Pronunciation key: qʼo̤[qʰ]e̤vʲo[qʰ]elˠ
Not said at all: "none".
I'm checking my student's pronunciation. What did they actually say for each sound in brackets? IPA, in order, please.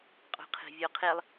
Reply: qʰ, qʰ

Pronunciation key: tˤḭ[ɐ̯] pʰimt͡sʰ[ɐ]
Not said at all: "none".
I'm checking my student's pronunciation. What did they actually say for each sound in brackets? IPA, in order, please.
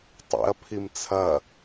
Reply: ɐ̯, ɐ

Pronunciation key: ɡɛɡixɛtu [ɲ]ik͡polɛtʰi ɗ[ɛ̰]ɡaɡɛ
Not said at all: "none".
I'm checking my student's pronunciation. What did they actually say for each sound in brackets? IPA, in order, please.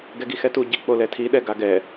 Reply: ɟ, ɛ

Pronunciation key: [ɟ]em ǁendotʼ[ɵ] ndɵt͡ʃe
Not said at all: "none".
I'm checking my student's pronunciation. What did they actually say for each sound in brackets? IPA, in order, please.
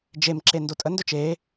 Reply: d͡ʒ, ə

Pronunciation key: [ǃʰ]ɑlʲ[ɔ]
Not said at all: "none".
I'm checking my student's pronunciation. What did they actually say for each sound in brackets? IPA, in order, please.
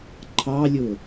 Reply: ǃʰ, ʊ

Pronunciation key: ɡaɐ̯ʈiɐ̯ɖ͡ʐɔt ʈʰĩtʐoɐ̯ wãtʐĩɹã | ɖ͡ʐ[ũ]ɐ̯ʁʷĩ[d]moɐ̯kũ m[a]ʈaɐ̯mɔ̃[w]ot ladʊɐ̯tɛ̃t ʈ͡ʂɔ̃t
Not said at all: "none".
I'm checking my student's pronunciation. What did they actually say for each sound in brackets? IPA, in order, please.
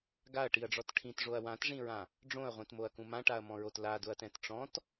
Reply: õ, t, ã, ɹ

